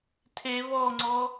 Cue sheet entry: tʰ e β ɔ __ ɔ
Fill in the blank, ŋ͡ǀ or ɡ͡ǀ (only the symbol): ŋ͡ǀ